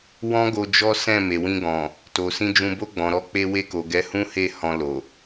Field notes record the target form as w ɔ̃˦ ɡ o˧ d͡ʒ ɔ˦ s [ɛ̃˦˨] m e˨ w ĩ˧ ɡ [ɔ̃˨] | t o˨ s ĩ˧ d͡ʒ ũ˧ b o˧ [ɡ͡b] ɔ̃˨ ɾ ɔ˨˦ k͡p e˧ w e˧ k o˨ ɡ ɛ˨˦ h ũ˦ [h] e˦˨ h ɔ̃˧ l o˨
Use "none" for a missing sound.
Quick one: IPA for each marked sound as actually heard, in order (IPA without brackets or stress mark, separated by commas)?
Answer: ɛ̃˦˨, ɔ̃˨, ɡ͡b, h